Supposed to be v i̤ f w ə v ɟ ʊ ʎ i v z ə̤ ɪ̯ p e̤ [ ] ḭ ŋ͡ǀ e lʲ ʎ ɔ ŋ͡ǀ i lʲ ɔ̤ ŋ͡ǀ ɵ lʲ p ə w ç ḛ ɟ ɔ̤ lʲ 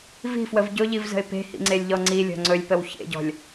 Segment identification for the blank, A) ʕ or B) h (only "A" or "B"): B